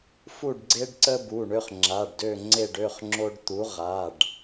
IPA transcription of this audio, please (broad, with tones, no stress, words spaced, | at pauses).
fu˦˨ɖɡ͡ǀe˦ɖǀə˦ bu˩˧˩ ɳø˦χŋ͡ǁa˩˧˩ɖdø˦˨ ŋ͡ǀe˦˨ɖø˩˧˩χ ŋ͡ǁo˦ɖt̪u˨˥ ʁa˩˧˩ɖ